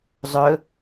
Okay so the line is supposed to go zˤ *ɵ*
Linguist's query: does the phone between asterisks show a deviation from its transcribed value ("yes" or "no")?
no